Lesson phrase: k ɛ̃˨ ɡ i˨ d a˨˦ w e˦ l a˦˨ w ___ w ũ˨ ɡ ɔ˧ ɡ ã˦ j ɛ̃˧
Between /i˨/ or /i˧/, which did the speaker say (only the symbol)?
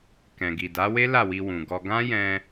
i˧